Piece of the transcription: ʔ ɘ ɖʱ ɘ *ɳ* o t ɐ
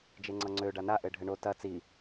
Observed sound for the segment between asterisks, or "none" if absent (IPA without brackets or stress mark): ɳ